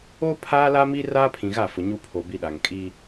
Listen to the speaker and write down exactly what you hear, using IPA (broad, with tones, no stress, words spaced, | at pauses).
o˦ pʰaː˦la˦mi˦ raː˦pʰĩ˨ɣa˦˨fʊ˨ ɲu˦pʰo˨ bi˦ɗa˨ŋ kʼi˦